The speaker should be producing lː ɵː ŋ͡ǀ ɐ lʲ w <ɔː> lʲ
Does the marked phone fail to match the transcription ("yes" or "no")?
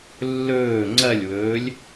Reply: yes